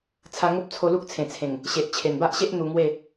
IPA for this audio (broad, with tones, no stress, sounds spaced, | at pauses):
t͡sʰ a˧ ŋ o˦ p̚ t͡sʰ o˧ l u˦ k̚ t͡sʰ ẽ˨˩ t͡sʰ ẽ˨˩ ŋ | ɕ e˨ ʔ t͡ɕʰ e˨˩ n b a˦ ʔ ɕ e˦ ʔ n̪ u˧ ŋ w e˥˧